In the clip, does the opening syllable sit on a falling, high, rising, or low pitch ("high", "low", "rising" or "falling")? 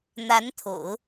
rising